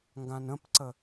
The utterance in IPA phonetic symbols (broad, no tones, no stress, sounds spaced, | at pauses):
ŋ ɡ ã n ə̃ p ǀ ə